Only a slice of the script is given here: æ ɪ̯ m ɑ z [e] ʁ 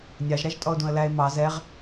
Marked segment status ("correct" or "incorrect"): incorrect